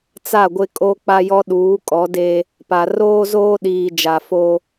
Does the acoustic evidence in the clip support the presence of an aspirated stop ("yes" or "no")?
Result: no